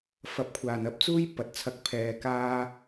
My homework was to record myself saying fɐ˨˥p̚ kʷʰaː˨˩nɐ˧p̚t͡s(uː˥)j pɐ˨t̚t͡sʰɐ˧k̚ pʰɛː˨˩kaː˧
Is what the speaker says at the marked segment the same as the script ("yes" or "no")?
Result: yes